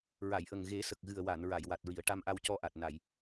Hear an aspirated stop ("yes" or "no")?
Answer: no